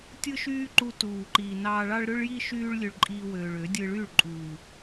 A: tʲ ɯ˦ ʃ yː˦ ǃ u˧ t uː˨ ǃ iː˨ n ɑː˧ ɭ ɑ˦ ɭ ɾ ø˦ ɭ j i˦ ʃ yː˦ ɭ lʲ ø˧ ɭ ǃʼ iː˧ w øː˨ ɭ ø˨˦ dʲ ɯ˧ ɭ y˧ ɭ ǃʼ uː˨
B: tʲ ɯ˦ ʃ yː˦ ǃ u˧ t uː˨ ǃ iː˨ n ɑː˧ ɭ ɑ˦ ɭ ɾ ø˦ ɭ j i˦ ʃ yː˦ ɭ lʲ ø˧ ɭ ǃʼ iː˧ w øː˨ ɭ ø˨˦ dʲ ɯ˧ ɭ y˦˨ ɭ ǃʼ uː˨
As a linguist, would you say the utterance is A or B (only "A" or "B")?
B